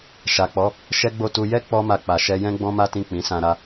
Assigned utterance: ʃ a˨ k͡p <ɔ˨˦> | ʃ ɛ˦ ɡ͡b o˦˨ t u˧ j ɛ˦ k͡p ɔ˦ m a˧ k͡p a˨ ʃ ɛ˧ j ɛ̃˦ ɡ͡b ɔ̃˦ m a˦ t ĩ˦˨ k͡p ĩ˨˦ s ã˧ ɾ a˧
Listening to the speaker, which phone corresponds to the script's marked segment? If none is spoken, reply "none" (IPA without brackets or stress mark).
ɔ˨˦